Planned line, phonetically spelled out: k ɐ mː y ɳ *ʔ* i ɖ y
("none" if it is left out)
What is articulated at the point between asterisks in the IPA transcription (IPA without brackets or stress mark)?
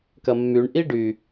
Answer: ʔ